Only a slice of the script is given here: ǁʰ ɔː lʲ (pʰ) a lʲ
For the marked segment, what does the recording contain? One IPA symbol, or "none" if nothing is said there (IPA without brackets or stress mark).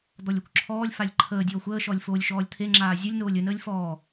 f